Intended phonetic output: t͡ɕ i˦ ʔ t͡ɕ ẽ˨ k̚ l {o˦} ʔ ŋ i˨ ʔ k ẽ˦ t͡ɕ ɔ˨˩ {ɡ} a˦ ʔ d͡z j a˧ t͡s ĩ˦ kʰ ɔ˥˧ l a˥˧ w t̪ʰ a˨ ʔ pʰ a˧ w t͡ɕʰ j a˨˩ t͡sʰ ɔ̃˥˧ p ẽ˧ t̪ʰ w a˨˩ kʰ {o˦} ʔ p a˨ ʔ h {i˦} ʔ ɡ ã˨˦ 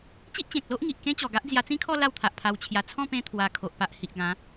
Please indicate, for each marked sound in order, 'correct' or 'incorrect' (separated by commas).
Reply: correct, correct, incorrect, incorrect